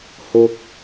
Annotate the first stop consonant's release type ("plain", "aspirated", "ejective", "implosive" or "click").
plain